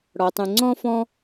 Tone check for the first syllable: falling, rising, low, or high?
low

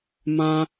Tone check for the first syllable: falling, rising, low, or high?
high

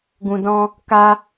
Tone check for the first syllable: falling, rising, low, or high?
low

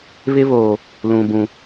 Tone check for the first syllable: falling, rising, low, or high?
high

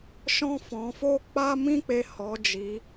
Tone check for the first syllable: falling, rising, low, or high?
high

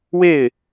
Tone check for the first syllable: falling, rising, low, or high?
falling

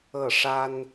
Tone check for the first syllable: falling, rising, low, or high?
falling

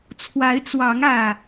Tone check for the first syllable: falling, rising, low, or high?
rising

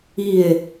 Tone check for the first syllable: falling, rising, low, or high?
falling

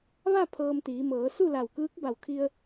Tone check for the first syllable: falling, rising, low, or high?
falling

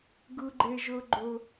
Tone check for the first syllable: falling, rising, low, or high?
high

